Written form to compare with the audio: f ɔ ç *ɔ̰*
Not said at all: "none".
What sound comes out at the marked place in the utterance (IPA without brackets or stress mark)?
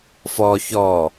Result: ɔ